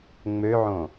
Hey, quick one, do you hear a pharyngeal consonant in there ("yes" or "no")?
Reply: yes